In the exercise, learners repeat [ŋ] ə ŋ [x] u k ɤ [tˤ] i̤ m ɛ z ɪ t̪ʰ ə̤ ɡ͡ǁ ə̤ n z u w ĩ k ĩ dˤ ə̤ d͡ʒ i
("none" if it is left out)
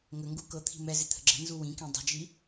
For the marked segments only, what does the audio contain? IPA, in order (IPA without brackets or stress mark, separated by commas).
ŋ, ɡ, t̪ʰ